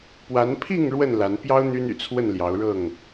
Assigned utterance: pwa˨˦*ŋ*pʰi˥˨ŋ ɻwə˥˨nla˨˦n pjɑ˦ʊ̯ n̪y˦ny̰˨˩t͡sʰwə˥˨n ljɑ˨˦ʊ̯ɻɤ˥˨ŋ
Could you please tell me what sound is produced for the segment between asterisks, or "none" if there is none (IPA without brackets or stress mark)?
n